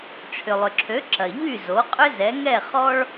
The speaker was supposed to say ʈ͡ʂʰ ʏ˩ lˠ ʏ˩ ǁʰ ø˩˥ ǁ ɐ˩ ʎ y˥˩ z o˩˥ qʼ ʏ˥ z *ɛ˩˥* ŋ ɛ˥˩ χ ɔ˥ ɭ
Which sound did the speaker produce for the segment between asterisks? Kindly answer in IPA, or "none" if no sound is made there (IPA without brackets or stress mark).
ɛ˩˥